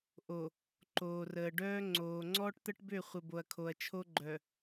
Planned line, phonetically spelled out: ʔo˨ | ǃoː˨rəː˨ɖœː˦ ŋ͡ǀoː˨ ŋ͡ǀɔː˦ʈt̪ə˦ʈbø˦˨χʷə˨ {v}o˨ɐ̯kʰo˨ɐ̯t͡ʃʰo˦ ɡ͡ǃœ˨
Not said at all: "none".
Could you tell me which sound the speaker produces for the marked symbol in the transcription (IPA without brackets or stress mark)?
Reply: b